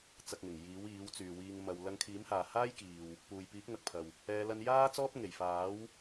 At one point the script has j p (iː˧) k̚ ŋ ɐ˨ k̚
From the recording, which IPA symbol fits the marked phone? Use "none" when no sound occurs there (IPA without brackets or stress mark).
iː˨˥